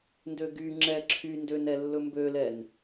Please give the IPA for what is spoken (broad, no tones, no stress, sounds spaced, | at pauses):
n d ø ɡ y ŋ͡ǁ ɛ ǁʰ y n d ø n ɛ lː ɵ m b ø l ɛ n